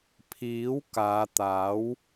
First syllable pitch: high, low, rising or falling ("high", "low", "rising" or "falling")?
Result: rising